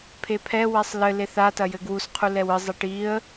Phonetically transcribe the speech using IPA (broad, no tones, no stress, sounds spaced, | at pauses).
pʰ e pʰ ɛ w ɛ sˤ l ɘ l e θ a t ɐ j ɘ ɡ w u s qʰ u l ɛ w ɨ zˤ ɛ ʈ i ə̯